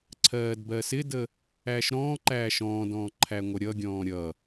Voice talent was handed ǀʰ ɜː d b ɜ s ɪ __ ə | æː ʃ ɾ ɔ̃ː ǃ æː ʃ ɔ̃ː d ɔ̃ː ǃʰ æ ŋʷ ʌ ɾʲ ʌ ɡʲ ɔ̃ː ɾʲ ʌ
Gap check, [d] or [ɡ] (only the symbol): d